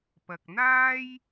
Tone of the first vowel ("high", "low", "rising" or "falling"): low